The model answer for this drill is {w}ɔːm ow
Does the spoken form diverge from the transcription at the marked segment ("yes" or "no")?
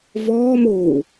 yes